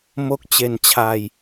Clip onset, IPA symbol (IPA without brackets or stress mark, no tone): m